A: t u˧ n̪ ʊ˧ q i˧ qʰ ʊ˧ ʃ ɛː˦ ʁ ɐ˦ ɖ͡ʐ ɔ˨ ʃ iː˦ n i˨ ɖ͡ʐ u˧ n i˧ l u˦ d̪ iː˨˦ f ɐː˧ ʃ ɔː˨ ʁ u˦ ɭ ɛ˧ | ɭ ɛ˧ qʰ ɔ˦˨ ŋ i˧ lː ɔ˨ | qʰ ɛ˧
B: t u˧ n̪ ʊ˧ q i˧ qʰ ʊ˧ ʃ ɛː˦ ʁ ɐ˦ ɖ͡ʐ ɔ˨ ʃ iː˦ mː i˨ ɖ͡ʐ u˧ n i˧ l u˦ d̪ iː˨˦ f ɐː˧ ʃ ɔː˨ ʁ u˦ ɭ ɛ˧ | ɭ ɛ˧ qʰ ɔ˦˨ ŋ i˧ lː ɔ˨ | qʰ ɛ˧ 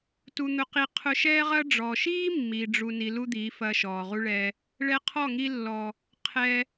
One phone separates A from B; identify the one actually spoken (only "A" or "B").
B